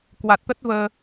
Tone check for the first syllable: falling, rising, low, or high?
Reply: low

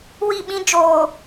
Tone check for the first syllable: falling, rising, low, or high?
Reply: falling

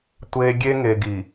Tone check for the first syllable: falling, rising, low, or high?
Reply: low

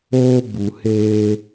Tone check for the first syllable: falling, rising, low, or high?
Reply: high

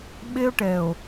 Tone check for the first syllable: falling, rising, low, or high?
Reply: high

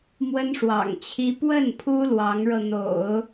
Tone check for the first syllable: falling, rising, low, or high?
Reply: high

